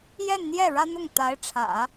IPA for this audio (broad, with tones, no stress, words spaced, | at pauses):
jɛ˥˧nn̪jɛ˥˩ ɻä˥n̪ʊ˥˩ŋ t̪a˧˥ɪ̯ʈ͡ʂʰä̰˨˩˦